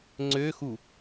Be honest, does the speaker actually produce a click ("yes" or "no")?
yes